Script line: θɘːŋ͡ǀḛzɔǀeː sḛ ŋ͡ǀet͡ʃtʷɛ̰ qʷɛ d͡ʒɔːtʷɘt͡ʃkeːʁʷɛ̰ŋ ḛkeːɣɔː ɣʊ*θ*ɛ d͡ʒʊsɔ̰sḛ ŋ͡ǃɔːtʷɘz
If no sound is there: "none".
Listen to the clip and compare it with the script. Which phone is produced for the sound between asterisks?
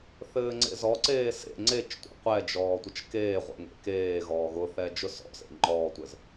θ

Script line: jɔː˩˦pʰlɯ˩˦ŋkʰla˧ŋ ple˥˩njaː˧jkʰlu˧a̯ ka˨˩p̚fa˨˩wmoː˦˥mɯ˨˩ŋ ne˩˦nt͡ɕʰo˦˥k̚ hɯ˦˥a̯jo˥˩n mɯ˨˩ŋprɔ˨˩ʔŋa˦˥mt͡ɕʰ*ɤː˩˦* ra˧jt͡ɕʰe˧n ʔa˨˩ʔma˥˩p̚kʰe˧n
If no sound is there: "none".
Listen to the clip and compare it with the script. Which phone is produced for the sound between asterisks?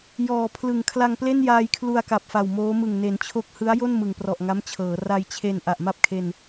ɤː˩˦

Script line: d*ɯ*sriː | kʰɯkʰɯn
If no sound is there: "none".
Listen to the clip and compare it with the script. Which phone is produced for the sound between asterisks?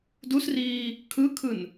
u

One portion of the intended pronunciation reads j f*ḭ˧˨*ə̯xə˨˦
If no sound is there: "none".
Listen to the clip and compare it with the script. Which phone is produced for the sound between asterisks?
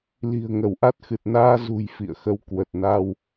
ḭ˧˨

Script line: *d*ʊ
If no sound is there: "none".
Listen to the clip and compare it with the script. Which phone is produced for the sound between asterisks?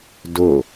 d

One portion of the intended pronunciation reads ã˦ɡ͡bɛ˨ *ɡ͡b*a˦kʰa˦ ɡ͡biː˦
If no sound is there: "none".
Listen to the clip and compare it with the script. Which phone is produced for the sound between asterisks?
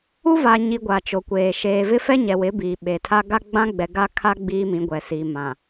ɡ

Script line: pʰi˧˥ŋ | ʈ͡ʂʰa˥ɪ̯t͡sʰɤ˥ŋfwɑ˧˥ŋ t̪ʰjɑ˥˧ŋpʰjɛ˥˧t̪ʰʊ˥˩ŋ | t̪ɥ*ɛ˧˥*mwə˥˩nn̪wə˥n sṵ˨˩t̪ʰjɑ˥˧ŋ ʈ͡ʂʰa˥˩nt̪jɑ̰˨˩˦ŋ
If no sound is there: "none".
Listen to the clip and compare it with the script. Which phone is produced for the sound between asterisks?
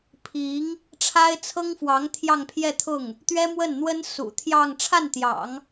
ɛ˥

